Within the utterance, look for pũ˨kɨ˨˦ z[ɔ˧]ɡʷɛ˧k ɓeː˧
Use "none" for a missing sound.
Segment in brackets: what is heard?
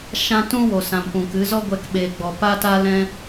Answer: ɔ˦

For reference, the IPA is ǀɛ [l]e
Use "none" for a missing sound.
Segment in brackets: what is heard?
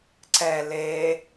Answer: l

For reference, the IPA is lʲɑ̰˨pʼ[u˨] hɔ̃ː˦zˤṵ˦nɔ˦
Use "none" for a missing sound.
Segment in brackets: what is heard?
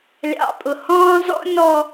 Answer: ʊ˨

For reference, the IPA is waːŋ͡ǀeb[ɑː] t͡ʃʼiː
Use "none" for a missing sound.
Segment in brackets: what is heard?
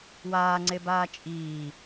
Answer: aː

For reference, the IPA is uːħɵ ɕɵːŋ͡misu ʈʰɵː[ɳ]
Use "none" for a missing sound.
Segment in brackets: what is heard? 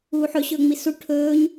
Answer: ɲ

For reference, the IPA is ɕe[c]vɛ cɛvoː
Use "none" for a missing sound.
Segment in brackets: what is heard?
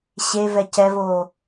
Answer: none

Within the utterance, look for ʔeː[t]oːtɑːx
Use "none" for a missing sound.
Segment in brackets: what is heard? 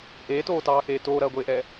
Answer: t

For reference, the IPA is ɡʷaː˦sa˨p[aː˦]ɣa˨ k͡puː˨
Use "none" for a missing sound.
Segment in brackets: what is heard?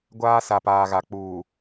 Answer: aː˨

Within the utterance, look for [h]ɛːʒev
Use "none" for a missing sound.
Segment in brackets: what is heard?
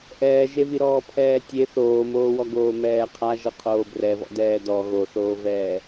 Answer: ʔ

